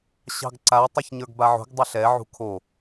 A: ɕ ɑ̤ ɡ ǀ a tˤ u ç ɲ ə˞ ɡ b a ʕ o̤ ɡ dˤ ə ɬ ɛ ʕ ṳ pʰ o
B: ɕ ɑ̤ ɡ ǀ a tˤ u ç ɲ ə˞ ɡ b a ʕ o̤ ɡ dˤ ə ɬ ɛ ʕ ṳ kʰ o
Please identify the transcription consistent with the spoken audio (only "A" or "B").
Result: B